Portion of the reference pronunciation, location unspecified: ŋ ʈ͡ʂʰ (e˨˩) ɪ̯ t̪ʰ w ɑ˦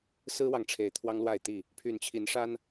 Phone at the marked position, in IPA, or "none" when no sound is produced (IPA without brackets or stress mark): e˨˩